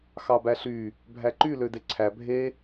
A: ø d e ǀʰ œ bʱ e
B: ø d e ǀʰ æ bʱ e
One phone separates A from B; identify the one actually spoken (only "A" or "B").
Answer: B